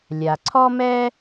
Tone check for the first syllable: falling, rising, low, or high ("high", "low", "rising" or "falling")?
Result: low